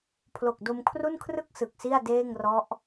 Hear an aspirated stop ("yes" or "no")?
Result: yes